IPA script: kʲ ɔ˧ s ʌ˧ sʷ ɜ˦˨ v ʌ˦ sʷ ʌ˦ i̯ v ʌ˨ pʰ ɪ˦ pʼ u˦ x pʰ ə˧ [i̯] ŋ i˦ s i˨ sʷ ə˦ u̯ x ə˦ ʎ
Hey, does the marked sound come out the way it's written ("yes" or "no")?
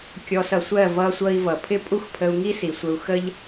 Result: no